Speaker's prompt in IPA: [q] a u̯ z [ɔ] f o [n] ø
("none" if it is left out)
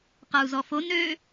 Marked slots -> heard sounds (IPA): q, ɔ, n

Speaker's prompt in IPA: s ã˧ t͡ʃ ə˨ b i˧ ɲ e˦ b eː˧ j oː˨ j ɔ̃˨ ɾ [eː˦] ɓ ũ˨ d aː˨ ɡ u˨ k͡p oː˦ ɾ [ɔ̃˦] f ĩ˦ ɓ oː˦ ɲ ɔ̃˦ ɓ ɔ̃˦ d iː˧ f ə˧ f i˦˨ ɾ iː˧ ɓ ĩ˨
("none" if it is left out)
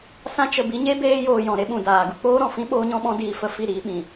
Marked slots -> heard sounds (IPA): e˦, ɔ̃˨

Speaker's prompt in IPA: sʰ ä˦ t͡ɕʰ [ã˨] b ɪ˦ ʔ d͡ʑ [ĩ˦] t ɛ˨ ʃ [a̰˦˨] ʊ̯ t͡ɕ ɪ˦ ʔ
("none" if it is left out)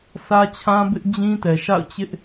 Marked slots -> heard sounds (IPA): ã˦, ĩ˦, a̰˦˨

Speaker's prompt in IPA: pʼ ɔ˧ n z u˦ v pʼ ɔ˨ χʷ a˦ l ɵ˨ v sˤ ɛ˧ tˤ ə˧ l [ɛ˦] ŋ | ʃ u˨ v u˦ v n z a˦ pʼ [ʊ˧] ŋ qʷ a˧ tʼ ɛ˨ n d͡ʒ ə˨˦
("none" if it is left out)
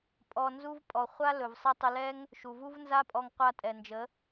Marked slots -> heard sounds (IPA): ɛ˦, ɔ˧

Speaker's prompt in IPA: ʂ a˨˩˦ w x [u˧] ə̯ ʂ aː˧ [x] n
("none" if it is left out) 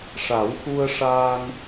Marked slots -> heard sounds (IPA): u˧, none

